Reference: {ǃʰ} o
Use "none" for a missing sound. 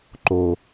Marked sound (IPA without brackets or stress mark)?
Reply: ǃ